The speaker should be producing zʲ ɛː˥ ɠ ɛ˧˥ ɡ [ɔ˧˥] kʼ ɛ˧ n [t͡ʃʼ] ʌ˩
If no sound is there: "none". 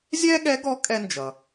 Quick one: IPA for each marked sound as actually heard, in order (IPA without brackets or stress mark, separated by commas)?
ɔ˧˥, d͡ʒ